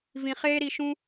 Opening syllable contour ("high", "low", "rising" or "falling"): low